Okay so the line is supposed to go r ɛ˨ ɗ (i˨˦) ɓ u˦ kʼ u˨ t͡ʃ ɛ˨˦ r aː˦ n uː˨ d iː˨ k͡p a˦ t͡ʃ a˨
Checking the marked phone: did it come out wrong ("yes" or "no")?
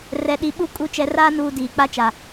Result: no